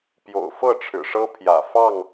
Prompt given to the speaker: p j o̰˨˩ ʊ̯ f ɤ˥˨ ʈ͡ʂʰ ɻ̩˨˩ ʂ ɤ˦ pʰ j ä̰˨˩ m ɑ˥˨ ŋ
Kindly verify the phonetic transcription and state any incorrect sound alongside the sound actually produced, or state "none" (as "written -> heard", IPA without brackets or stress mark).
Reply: m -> f